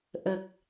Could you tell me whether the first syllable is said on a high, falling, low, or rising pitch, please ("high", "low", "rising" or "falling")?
low